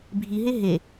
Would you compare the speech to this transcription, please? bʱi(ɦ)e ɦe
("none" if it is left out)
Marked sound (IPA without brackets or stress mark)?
ɦ